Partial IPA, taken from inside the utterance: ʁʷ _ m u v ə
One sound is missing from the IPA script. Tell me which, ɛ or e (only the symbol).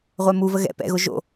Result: ɛ